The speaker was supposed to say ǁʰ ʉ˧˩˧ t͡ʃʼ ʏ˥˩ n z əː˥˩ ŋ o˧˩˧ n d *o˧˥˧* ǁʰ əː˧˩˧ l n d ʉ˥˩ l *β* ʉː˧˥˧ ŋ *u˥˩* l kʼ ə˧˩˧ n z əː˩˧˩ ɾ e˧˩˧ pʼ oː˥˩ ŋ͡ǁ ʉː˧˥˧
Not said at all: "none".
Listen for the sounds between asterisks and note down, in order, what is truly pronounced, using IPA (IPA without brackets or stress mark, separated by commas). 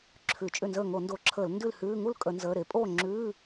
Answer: o˧˩˧, h, u˥˩